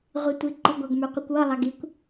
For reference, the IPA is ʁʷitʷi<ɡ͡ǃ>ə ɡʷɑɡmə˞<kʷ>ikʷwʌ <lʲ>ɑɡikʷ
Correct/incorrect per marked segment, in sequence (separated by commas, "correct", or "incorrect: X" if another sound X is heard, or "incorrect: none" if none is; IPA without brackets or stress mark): correct, incorrect: qʷ, incorrect: lˠ